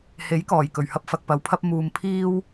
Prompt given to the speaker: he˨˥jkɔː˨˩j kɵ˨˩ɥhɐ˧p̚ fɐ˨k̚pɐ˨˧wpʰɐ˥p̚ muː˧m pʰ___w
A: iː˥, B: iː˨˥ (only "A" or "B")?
A